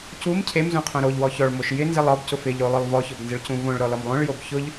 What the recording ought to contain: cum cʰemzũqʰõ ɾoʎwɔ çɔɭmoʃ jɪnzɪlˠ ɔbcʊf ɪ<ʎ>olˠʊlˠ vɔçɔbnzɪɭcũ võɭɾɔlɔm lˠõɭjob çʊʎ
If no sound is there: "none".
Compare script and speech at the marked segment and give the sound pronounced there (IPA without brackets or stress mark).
ʎ